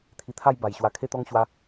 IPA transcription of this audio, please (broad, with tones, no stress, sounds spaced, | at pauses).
t̪ʰ i˧ t̪ʰ a˥˧ j b a˨˩ j ɕ w a˧ kʰ e˥˧ t̪ ɔ˦ ŋ ɕ w a˦